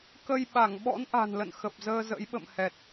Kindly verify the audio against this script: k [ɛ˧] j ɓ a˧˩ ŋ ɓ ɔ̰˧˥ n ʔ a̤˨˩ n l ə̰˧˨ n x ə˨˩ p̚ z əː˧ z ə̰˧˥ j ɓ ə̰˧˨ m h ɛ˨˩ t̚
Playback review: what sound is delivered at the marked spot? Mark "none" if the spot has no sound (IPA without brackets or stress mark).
ə˧